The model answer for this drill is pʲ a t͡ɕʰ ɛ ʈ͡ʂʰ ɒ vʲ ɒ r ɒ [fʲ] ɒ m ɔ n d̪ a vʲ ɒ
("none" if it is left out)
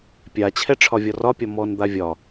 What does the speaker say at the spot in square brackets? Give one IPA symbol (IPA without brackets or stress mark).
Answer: pʲ